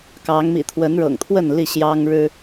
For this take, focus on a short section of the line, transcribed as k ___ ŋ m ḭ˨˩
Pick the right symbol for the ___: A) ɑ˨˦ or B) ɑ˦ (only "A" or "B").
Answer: A